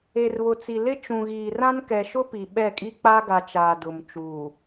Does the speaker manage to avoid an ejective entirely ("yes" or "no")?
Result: no